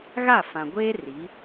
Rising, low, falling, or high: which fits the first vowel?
falling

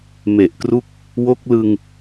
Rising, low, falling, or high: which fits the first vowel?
low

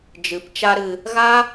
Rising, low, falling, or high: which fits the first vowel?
rising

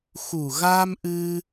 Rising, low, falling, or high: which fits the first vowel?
low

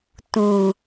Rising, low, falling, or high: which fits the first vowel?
low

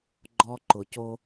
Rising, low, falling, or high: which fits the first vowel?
high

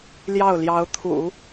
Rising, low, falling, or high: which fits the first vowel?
falling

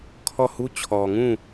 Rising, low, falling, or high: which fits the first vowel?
falling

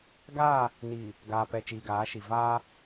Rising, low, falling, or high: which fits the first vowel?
falling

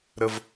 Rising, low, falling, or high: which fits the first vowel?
low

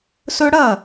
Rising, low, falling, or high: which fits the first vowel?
high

